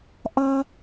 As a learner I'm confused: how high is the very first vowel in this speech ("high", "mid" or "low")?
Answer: low